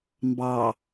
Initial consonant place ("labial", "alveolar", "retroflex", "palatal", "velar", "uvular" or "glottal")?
labial